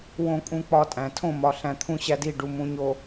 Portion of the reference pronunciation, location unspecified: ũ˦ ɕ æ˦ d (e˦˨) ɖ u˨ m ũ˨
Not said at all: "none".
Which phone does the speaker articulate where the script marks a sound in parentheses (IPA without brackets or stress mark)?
i˦˨